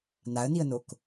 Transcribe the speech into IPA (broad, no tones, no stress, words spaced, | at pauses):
naə̯niə̯nok